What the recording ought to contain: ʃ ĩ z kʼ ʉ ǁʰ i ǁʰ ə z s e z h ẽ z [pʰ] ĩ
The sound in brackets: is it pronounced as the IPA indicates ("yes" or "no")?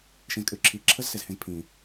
yes